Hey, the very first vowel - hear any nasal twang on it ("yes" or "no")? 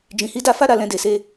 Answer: yes